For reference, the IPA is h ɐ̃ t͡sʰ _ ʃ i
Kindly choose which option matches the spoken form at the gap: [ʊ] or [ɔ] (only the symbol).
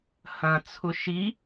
ʊ